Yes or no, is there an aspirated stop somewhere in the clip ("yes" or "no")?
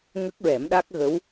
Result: no